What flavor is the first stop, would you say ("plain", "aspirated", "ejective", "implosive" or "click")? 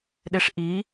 implosive